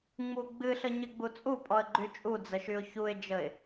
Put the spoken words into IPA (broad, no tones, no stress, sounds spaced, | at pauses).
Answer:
ŋ͡m u ɡ͡b ɨ ɬ ə ɲ ɨ ɡ͡b u t͡sʼ u pʼ ɔ ə̯ ɡ͡ǃ y t͡ʃʼ u d͡z ə ʃ y ʊ̯ ç u ɪ̯ d͡ʒ ə ɪ̯